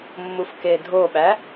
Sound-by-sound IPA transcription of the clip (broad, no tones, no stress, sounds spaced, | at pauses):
mː u f k e dʱ o ɓ æ